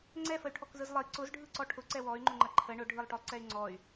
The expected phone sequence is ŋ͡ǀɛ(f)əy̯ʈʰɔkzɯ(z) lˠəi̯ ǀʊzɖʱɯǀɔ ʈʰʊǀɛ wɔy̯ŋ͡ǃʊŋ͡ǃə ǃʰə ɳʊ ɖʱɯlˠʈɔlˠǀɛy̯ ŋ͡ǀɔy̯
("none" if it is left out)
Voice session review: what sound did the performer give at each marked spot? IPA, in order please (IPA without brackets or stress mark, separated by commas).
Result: f, z